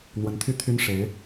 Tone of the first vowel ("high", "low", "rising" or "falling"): rising